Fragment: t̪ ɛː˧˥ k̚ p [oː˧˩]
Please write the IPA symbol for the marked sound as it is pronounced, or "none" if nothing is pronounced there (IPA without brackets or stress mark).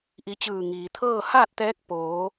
oː˩˧